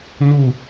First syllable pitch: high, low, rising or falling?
falling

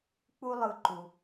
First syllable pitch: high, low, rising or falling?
high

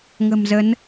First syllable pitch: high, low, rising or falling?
low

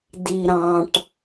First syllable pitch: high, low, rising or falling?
low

